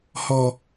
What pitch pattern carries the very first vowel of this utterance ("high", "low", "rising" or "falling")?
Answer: low